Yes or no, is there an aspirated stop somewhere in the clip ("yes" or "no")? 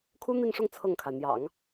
yes